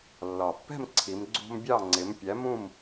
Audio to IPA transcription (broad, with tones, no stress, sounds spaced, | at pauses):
lː ɒ˨˩ pː ɛ̤˥˨ m ǀʰ i˩˧ m ɡ͡ǀ ṳ˦ m bʲ ɑ˥˨ ŋ͡ǀ ɪ˨˥ m pʲ æ˨˥ m ũ˥˨ m